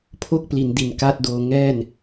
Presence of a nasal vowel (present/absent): absent